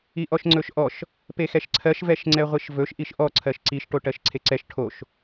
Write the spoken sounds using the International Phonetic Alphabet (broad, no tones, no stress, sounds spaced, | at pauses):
i ʔ ɔ ʃ ŋ͡ǀ ɵ ʃ ʔ ɔ ʃ | p e x ɛ ʃ ǀʰ ɜ ʃ v ɛ ʃ ŋ͡ǀ ɛ ʁʷ i ʃ v ɵ ʃ ʔ i ʃ ʔ ɔ ǀʰ ɜ ʃ ǀ i ʃ ʈ o ʈ ɜ ʃ ǀʰ e ǀ ɛ ʃ ʈʰ o ʃ